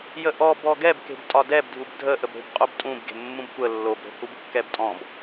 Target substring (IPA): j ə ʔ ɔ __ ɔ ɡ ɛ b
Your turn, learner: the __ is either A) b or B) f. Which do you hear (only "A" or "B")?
A